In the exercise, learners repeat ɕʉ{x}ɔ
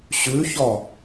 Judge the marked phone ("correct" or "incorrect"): incorrect